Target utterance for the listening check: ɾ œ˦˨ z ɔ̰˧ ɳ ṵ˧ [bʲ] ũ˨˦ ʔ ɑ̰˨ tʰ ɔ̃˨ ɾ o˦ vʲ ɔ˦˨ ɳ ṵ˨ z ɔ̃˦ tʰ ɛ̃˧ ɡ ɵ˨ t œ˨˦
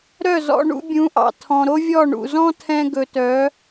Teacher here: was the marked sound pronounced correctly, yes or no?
yes